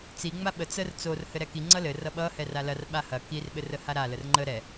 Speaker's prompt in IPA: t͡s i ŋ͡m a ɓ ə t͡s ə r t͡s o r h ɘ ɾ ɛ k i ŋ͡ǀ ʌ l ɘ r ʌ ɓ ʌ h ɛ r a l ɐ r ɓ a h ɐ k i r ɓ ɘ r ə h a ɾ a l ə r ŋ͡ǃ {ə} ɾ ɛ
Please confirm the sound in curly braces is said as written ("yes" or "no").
yes